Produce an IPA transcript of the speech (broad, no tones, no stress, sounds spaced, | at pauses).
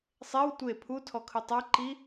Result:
sˤ e w tʷ e pʰ u tʰ ɔ kʰ ɯ tˤ a ǃ i